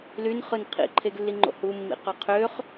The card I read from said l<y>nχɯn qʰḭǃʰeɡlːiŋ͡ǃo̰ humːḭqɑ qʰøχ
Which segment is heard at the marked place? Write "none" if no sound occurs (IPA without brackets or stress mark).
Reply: y